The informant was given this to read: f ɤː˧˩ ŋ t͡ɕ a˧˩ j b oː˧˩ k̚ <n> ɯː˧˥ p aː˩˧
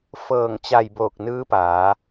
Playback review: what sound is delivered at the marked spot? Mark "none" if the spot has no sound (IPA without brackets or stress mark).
n